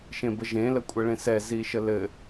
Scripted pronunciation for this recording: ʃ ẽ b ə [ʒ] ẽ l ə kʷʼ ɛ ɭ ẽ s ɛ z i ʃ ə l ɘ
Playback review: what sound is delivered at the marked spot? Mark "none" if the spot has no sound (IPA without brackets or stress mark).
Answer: ʒ